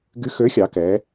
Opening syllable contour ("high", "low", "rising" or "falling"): rising